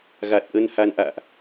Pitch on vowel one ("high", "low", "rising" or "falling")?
low